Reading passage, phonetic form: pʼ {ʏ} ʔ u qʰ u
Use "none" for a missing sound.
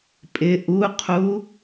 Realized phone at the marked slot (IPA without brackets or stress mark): ɪ